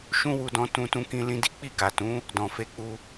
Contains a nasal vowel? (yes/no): yes